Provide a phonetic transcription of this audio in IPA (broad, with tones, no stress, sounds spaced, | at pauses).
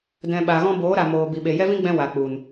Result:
d ɛ̃˨ ɓ a˨ ɣ ɔ̃˧ b oː˨˦ ɾ a˨ m oː˨ b i˨ ɓ e˨ j ɛ˦ v ĩ˦ ɡ͡b ɛ̃˧ w a˨ k͡p u˨ n